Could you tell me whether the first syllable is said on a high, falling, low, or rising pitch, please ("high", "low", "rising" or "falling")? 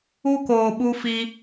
high